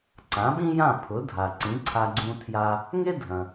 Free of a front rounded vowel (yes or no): yes